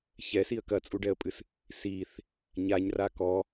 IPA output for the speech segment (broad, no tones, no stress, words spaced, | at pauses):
çɛsiə̯ kɐt͡sʼuɖɛə̯pʼɨs | siθ | ɲaɲra kɔ